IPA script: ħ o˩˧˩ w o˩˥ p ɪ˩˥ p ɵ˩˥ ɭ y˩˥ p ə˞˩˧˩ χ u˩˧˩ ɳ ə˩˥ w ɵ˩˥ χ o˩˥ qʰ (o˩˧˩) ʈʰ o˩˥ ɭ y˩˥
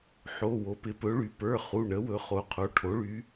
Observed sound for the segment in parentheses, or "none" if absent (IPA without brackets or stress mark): o˩˧˩